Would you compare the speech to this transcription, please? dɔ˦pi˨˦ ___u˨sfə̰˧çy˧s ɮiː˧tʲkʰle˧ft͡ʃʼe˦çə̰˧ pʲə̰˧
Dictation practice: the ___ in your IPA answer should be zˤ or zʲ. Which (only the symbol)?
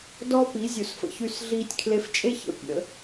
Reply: zʲ